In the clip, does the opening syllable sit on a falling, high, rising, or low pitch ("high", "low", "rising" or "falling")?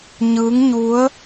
rising